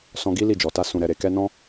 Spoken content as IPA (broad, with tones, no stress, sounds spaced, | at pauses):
s ɔ̃˧ ɡ i˦ l i˦˨ d͡ʒ ɔ˨ t a˧ s ũ˨ ɾ ɛ˨ ɾ e˨ k ɛ˧ n ɔ̃˦